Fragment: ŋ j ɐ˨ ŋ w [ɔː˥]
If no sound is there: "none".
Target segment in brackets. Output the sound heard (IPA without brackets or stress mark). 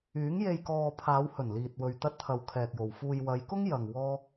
ɔː˥